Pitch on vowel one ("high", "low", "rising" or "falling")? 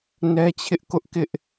high